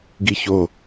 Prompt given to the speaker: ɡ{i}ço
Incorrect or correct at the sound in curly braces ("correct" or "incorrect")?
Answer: correct